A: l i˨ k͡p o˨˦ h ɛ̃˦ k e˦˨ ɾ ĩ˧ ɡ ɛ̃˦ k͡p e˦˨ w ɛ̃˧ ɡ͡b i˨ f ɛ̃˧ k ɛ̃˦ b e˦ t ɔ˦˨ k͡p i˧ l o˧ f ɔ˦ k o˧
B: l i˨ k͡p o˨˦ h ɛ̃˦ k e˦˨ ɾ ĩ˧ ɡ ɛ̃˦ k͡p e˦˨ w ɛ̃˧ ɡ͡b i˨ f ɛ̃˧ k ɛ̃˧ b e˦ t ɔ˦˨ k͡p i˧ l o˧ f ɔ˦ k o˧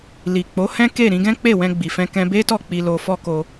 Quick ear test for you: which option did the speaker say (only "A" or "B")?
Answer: B